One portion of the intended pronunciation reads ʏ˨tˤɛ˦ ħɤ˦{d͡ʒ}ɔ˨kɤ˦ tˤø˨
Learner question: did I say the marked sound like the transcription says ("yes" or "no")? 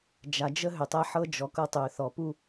yes